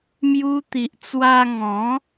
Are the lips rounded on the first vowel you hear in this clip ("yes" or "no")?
yes